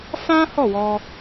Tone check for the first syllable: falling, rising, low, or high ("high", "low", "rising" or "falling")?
high